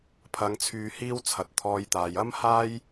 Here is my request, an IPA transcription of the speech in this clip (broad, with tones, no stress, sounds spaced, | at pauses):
pʰ ɐ˨˧ ŋ t͡sʰ yː˧ h iː˥ w t͡sʰ ɐ˨ t̚ t̪ʰ ɔː˧ j t̪ aː˨ j ɐ˥ m h aː˥ j